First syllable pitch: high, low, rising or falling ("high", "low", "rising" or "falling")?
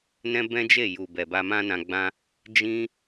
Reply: high